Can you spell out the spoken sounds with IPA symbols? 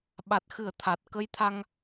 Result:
ɓ a˨˩ t̚ x ɨ˨˩˦ ə̯ t̪ʰ a˨˩ t̚ k ə˧ j t̪ʰ a˧ ŋ

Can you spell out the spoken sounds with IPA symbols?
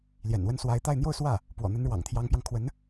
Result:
l j ɛ̰˨˩ n w ə˥˩ n s w a˧˥ ɪ̯ t̪ a˥˧ ɪ̯ n̪ j o˥˧ ʊ̯ s w ä˥˩ | p w ɔ̰˨˩ n̪ ə˧˥ n ɻ w ɑ̰˨˩ ŋ t̪ʰ j ɑ˧˥ ŋ p j ɑ˧ ŋ kʰ w ə˧˥ n

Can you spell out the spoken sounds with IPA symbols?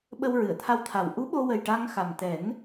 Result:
ɓ ə˧ w ɹ ɨ˨˩˨ ə̯ t̪ʰ a˧ w t̪ʰ a˨˩ w ʔ u˧˥ ɓ o˧ w ə˨˩ j ʈ a˧ ŋ x a˨˩ m t̪ ɛ˨˩˦ n

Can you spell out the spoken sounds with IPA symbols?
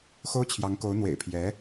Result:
x o˥ ʊ̯ t͡ɕʰ j ɑ˧˥ ŋ k o˧˥ ʊ̯ n̪ w ḛ˨˩ ɪ̯ pʰ j ɛ˧˥

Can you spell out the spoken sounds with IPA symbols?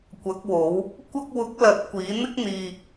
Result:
kʷ ɐ˨˥ k̚ w o˨˥ w | kʷ ɐ˧ k̚ w ʊ˨˥ k̚ l ɐ˨˥ t̚ kʷ iː˨˥ n̪ ɪ˥ k̚ n̪ iː˧

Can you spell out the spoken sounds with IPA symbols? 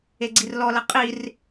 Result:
e ɡ͡ǀ i r l ɔ l ɐ qʼ i r

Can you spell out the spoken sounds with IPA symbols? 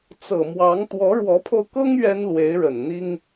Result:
t͡s ɤ˨˩ m w ɑ˧˥ ŋ t̪ w ɔ˧˥ ɻ w ɔ˧˥ pʰ o˧ ʊ̯ k ɤ˥ ŋ ɥ ɛ˥ n l w e˧˥ ɪ̯ ɻ ə˨˩ n n̪ i˥ ŋ

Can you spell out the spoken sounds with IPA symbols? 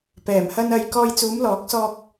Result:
p ɛː˨˩ m h ɐ˧ n ɐ˧ j k ɔː˧ j t͡s uː˨˧ m l ɔː˨˥ k̚ s ɔː˧ k̚

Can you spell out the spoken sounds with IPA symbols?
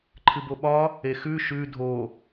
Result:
ǃʰ ɨ b o ɓ ɒ | e x ʉ ʃ ʉ dʱ o

